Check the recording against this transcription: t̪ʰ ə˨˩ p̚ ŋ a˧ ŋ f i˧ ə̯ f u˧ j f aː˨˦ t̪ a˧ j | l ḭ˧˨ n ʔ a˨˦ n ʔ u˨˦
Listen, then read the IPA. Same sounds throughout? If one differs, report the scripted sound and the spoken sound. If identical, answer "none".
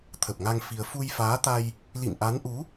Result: none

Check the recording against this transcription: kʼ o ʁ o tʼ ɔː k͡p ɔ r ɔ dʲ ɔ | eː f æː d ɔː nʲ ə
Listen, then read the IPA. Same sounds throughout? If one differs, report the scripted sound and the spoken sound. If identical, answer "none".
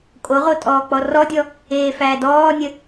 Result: none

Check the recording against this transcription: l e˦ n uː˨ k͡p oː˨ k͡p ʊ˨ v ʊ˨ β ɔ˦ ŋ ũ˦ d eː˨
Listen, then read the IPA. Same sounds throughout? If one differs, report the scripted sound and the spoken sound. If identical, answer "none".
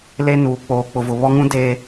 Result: none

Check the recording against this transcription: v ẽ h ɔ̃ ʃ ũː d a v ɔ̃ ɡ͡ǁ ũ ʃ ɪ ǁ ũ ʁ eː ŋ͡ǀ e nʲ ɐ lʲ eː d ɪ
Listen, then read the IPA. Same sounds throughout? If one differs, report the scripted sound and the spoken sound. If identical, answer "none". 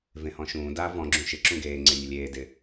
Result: ʁ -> ɡ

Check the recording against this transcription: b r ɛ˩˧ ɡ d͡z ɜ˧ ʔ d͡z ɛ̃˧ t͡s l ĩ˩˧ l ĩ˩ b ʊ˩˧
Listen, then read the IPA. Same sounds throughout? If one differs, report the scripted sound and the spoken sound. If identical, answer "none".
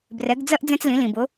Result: none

